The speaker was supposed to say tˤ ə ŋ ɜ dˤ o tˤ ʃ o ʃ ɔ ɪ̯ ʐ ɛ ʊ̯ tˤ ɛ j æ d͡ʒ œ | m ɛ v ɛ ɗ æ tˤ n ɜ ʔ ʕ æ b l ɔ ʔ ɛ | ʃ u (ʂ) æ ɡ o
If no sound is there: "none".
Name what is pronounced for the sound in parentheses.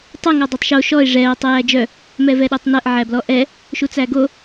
t͡s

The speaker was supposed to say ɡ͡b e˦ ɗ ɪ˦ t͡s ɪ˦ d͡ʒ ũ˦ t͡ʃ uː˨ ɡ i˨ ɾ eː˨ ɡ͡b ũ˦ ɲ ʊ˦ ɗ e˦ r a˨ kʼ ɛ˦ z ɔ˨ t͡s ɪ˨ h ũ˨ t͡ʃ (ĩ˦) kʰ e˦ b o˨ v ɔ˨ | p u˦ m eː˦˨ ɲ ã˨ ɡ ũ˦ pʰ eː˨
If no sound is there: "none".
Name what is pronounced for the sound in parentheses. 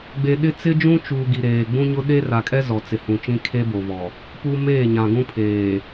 ĩ˦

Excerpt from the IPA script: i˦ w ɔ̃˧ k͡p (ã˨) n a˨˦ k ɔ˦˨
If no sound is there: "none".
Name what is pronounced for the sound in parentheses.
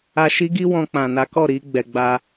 ã˨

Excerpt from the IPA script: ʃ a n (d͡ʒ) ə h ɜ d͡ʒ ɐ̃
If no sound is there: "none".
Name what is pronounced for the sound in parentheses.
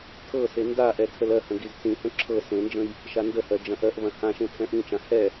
d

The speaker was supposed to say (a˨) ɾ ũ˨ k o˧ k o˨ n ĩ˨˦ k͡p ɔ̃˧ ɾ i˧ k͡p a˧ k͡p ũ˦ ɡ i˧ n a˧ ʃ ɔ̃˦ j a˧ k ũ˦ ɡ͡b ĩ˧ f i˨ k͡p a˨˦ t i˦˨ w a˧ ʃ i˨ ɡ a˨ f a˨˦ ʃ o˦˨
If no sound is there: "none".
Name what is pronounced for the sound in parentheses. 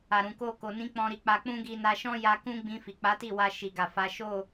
a˨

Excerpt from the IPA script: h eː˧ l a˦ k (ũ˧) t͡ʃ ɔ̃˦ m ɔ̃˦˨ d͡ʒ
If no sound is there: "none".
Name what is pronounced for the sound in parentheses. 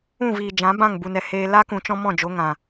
ũ˧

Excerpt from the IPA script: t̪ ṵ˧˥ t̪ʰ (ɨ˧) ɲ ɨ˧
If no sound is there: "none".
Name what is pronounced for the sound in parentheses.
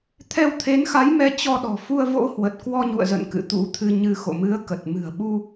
ɨ˧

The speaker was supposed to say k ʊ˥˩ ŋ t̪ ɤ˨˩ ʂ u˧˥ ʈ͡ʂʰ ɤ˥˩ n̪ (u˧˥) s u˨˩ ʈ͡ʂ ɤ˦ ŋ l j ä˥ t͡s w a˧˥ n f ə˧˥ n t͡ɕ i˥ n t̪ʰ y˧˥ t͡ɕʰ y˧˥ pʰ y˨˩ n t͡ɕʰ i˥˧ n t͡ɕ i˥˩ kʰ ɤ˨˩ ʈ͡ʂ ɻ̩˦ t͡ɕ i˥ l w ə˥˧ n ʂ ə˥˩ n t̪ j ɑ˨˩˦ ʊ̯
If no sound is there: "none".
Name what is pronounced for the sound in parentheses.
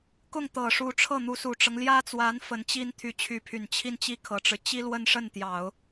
u˧˥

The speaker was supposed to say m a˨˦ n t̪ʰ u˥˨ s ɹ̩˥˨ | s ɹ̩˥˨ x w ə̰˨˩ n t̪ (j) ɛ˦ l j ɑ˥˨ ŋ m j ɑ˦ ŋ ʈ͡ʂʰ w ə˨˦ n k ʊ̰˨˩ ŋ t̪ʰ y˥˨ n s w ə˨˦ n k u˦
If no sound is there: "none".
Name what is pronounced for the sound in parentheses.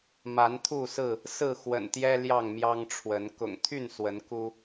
j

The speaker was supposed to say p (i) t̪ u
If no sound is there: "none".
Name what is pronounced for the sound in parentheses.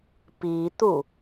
i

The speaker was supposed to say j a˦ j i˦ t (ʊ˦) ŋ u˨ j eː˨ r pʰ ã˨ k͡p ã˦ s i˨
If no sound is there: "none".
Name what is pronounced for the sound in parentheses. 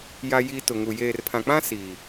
ʊ˨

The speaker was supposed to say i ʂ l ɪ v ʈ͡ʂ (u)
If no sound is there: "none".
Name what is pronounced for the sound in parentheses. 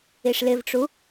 u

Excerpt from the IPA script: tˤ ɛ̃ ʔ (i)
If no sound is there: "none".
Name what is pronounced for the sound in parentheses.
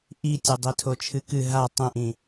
ĩ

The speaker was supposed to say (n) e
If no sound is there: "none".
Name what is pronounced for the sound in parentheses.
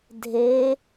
dʱ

